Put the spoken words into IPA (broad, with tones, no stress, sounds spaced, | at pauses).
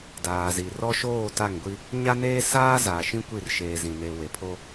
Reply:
d aː˨ z i˨ r ɔ˦ ʃ oː˦˨ t a˦˨ ŋ ɡʷ i˦ | ɲ a˦ n eː˦ s aː˦ z aː˨ ʃ ĩ˦ kʷ i˦˨ r ʃ eː˨ z ĩ˨ n e˨ w e˨ pʰ o˦